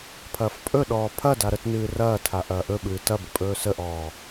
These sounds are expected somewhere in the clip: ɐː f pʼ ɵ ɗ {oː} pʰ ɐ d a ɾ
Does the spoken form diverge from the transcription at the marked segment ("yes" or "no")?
yes